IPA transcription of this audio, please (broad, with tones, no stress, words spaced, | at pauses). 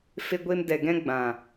fe˧ɡʷe˧m dɛ˨ɡɛ̃˧ɡ͡bã˨